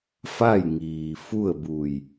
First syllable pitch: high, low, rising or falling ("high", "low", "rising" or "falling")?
falling